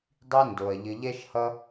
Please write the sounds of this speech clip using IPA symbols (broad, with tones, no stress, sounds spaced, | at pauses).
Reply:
dˤ i˦ n d o˨ ɐ̯ ʎ ɘ˧ ʎ ɛ˦ ʃ h ʌ˦